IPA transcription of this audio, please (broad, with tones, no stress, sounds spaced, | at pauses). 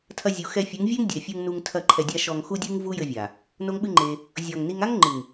tʰ ɐ˧ zʲ u˨ x ɛ˧ fʲ u˨˦ ŋ vʲ ɛ˦ ŋ dʲ ɛ˨ fʲ u˧ ŋ n u˧ ŋ tʰ ɐ˦˨ ǃʰ ɛ˧ dʲ a˦ ʃ ɔ˧ ŋ x u˦ dʲ ɨ˦ ŋ v u˦ j ɘ˧ vʲ a˨ | n o˦ ŋ ɓ ɨ˦ ŋ͡ǃ e˧ | zʲ ɔ˨ ŋ n i˧ ŋ a˦ ŋ ŋ͡ǃ ɨ˨ ŋ